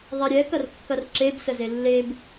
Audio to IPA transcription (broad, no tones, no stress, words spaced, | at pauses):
ðˤiɾʲɛ kɐrkːɐrǁeb səzelːeb